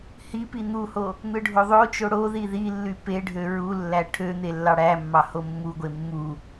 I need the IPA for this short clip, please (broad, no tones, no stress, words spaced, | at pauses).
hipi n̪uho | n̪ɯɖʱoðˤot͡ʃo ɽo ðiðilːy peɖʱø ɹulːæ ʈʰøn̪e lːɑɽæmːɑ homːuɡʷe mːu